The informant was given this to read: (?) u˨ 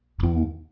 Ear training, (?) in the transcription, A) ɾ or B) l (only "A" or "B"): A